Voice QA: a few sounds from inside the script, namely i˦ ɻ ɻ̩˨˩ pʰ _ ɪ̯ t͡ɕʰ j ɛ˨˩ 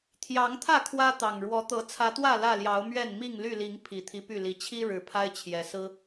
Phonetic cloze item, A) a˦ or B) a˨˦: A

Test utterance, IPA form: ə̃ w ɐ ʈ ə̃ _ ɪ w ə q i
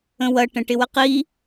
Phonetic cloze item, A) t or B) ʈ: B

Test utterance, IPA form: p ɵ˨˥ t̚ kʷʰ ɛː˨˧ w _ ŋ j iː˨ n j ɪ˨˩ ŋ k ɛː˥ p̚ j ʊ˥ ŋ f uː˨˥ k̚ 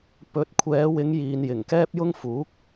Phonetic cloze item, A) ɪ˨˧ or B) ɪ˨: A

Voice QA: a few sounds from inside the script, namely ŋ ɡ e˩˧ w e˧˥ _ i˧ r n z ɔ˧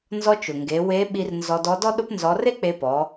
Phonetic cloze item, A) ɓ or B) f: A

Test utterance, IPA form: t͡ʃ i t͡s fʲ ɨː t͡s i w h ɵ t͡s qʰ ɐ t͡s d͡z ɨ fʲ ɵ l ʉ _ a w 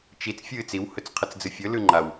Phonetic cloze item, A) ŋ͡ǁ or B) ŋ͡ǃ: B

